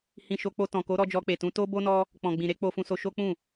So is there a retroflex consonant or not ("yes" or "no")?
no